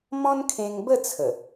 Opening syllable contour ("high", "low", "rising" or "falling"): high